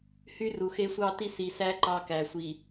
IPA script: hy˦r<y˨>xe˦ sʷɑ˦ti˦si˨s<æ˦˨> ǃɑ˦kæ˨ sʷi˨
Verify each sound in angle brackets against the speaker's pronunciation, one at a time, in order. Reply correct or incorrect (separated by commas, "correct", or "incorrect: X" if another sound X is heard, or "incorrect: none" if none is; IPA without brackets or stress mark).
incorrect: u˨, incorrect: æ˦